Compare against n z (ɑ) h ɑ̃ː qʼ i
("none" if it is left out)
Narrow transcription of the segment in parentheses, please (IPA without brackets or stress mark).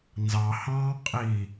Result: ɑ